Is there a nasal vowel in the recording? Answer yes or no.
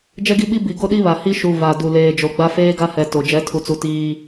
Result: no